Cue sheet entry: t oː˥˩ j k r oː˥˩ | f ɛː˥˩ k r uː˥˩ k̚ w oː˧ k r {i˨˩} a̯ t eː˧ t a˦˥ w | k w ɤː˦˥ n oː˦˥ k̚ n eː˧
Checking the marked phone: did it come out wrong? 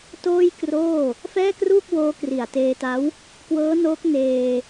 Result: no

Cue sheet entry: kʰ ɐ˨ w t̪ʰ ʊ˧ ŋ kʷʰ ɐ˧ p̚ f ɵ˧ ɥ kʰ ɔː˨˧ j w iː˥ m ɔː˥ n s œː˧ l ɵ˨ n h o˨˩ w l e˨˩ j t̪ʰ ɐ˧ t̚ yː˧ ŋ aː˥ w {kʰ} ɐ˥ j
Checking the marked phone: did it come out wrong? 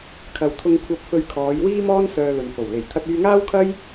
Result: no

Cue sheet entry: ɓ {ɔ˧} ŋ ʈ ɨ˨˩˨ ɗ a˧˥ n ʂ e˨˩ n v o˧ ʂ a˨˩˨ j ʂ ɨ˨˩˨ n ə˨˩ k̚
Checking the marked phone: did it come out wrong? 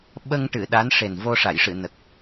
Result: yes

